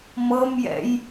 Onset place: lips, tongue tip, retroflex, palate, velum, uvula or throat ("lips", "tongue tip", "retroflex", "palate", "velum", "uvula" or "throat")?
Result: lips